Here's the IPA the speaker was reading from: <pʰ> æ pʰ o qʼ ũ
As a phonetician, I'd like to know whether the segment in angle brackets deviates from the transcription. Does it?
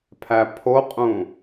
no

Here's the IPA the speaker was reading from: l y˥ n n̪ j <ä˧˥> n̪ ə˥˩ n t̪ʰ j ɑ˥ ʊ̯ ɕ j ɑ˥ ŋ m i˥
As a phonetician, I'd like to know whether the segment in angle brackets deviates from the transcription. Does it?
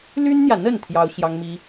yes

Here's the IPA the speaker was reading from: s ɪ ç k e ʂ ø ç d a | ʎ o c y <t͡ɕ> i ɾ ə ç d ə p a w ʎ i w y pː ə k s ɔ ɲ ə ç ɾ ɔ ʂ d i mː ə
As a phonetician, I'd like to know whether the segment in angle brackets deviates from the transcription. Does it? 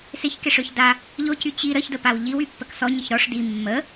no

